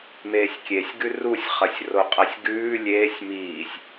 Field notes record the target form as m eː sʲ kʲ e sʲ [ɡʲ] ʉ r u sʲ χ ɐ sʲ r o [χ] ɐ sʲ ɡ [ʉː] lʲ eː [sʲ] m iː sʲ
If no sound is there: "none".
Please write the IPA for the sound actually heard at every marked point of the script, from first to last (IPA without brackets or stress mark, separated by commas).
ɡ, qʼ, ʉː, sʲ